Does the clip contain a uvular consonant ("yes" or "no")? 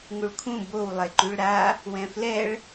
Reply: no